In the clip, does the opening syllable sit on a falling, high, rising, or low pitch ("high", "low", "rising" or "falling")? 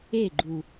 falling